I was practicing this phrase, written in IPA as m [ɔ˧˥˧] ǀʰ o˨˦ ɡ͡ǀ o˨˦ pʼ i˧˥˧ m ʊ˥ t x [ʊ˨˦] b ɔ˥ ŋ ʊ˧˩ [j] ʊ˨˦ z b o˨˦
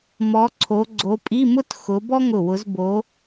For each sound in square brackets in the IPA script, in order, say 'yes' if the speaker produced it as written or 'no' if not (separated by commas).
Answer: no, yes, no